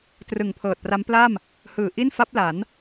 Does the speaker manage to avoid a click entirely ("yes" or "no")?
yes